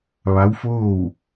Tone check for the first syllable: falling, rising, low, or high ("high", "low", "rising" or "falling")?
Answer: rising